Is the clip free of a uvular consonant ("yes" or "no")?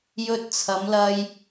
yes